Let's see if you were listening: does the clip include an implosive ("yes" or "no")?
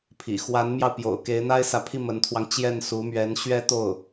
no